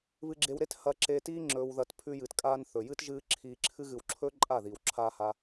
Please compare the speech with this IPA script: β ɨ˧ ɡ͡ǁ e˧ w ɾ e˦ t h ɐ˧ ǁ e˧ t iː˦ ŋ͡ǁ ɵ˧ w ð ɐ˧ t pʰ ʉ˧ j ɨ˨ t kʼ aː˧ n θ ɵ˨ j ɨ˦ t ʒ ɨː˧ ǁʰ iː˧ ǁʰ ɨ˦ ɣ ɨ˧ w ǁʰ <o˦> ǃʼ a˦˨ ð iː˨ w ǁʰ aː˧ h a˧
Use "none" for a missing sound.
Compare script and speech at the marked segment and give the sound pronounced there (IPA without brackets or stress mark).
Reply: ɵ˦